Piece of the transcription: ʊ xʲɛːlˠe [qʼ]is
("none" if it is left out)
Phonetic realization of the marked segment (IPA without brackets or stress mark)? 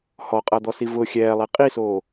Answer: qʼ